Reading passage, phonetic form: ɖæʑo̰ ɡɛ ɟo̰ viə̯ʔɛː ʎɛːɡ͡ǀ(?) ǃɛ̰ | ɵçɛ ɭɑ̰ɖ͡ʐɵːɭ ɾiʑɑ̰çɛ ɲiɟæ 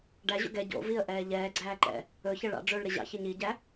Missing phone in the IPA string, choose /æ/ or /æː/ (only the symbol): æː